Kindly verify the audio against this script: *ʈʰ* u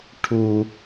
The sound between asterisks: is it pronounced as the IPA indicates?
yes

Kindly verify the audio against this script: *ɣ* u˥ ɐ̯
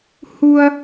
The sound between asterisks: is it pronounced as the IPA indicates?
no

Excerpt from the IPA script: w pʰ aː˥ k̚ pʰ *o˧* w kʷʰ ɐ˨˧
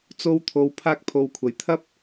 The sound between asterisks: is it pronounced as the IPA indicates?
yes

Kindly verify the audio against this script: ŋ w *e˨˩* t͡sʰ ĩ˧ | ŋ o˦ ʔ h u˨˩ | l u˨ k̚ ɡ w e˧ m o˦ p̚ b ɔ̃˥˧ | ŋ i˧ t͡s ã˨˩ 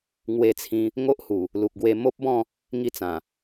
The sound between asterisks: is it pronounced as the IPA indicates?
no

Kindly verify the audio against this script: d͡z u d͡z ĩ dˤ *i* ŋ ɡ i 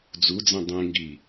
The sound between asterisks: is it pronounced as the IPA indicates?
no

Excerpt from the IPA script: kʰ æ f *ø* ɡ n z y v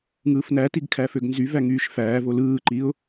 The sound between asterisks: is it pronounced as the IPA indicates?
yes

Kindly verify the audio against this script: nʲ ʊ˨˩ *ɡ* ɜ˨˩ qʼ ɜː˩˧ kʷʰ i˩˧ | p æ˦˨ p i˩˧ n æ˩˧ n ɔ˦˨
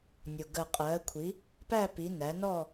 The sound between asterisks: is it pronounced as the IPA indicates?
yes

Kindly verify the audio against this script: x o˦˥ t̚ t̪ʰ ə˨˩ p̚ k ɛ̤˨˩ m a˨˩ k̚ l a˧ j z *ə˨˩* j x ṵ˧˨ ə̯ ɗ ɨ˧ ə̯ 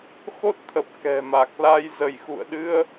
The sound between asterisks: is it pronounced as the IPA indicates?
no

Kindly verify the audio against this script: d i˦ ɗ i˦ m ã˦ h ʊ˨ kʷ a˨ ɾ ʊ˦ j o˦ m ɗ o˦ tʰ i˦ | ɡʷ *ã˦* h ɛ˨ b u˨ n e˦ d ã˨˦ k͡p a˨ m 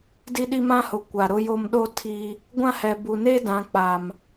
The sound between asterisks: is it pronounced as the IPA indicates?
yes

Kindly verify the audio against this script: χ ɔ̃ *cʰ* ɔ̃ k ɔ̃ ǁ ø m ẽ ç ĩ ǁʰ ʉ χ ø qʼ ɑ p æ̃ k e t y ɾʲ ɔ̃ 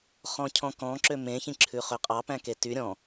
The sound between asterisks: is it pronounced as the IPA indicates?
yes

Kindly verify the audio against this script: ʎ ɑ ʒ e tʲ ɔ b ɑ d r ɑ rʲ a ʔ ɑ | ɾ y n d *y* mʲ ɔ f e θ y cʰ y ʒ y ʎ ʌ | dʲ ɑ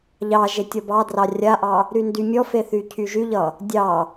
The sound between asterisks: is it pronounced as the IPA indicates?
yes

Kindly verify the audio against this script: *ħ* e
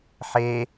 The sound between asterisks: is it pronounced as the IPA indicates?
yes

